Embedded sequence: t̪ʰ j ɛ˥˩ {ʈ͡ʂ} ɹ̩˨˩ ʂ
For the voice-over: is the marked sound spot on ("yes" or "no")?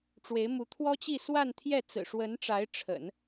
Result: no